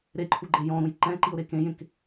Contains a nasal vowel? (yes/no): yes